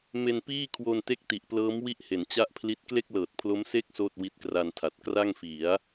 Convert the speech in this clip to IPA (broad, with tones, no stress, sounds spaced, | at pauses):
m e˧ n p iː˥˩ kʰ w o˧ n t e˦˥ k̚ t i˨˩ ʔ p l ɤː˦˥ m w i˥˩ ʔ h e˩˦ n t͡ɕ a˥˩ ʔ pʰ l i˦˥ t̚ k l e˥˩ k̚ l ɤː˨˩ t̚ pʰ l o˦˥ m s e˦˥ k̚ s oː˥˩ t̚ w i˦˥ t̚ k r a˧ n tʰ a˨˩ t̚ k r a˥˩ ŋ f i˩˦ a̯